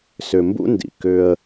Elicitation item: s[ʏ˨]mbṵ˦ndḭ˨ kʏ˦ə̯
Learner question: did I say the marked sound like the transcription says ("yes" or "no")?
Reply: yes